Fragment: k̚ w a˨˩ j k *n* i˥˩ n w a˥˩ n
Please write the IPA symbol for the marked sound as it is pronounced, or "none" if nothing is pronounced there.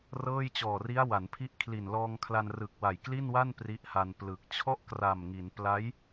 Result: l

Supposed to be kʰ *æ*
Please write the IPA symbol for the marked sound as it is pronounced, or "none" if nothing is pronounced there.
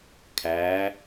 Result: æ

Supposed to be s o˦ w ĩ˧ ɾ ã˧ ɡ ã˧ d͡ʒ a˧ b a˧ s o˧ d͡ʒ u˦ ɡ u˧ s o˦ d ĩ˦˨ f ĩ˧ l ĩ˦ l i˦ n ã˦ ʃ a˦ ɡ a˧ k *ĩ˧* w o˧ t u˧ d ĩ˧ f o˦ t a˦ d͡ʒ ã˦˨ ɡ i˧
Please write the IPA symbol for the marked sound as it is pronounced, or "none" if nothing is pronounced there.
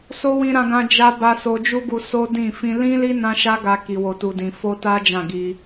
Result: i˧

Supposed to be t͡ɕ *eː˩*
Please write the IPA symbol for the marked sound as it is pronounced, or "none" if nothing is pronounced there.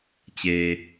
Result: eː˩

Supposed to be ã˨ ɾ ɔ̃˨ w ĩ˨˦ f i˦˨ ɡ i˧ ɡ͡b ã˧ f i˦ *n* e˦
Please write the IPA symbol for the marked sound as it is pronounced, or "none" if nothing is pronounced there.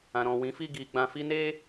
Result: n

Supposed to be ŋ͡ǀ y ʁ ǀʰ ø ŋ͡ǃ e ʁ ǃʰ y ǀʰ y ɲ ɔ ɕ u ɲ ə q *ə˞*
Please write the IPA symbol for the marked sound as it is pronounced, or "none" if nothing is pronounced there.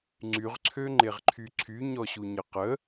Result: ə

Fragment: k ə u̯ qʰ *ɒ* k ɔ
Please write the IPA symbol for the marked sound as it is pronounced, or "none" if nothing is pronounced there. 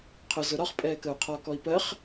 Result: ɒ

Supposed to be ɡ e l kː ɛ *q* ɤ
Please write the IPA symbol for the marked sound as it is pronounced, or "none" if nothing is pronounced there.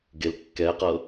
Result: q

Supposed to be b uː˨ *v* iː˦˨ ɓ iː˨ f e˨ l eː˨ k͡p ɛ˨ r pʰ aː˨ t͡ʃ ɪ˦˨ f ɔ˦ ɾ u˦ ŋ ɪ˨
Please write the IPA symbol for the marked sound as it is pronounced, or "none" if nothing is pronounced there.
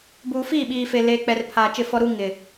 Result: f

